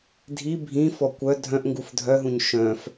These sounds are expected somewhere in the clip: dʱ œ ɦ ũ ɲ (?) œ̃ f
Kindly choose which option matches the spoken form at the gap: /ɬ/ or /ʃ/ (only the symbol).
ʃ